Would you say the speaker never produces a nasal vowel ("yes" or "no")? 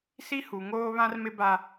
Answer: no